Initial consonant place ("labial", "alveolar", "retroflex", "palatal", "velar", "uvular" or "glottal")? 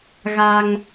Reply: velar